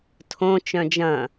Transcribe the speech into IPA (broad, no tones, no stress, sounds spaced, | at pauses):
tʰ õ t͡ʃ œ̃ d͡ʒ ɐ̃